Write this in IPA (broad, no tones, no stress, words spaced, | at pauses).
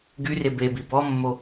ɡyre bebi bɔmːo